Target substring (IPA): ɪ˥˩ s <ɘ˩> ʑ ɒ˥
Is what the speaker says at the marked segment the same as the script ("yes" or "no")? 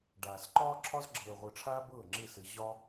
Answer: no